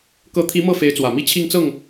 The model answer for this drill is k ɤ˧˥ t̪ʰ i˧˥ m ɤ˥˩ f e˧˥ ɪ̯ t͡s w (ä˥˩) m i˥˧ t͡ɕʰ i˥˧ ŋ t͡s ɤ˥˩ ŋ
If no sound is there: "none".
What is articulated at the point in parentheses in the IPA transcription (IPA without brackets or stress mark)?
ä˨˩